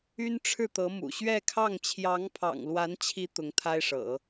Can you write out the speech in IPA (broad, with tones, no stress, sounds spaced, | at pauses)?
y˥ n ʈ͡ʂʰ ɻ̩˥˩ t̪ ɤ˧˥ m ṵ˨˩ ɕ ɥ ɛ˥˧ kʰ ɑ˥˩ ŋ t͡ɕʰ j ɑ˧˥ ŋ pʰ ɑ̰˨˩ ŋ l w a˧˥ n t͡ɕʰ i˧˥ t̪ ʊ˧˥ ŋ t̪ʰ a˥ ɪ̯ ʂ ɤ̰˨˩˦